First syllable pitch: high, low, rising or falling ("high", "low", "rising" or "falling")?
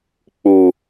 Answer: low